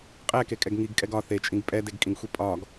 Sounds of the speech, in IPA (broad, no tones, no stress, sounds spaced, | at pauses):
qʼ ɛ k e kʼ ɛ ɡ ŋ i ɡ kʼ ɛ ɡ ɒ θ e t͡ʃʼ ĩ ɡ pʼ ɛ d e ɡ kʼ ĩ ɡ xʷ i pʼ ɒ ɡ